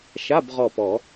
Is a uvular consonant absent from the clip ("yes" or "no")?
no